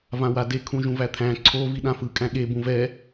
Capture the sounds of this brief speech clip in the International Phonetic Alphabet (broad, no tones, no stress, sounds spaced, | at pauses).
v ã w a d e kʰ ũ ʒ ũ v æ t̪ʰ æ̃ ǀʰ o v i ɗ ã f ɯ kʼ æ̃ ɠ e b ũ v ɛ